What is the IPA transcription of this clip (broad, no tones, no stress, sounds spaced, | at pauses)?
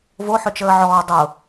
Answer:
v o ħ ʏ t͡ʃ əː ʕ ɔː dˤ ʊ